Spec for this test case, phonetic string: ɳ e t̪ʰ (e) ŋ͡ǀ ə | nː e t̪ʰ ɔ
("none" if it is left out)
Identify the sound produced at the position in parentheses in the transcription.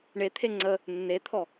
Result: e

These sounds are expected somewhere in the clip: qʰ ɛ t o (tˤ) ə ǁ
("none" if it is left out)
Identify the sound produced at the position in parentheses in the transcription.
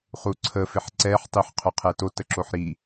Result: t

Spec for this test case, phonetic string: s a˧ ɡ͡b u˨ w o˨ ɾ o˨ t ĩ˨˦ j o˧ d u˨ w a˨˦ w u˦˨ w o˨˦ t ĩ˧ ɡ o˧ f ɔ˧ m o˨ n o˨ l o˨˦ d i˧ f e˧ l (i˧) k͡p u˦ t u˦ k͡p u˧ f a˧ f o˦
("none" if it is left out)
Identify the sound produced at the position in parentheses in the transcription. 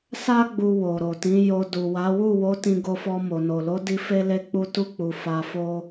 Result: e˧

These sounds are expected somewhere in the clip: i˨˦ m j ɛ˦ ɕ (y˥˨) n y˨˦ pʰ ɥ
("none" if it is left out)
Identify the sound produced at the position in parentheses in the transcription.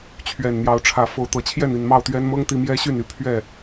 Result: y˥˨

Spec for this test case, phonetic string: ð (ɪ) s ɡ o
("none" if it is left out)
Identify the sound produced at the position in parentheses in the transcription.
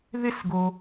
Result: ɪ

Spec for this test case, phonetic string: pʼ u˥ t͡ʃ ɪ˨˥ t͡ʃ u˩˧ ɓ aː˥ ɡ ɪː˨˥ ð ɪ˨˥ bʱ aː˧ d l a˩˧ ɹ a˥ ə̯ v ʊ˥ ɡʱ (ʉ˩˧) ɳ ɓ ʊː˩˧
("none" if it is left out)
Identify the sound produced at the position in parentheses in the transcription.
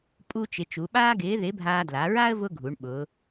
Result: u˩˧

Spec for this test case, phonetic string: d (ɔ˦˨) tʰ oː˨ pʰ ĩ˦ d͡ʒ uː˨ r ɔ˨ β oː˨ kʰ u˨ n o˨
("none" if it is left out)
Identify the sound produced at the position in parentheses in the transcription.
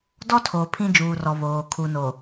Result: ɔ˦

